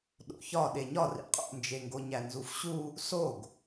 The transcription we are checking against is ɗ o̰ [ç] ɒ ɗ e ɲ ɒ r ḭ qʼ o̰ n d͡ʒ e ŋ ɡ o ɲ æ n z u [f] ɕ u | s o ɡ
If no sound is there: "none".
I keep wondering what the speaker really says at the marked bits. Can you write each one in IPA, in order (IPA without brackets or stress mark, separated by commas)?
ç, f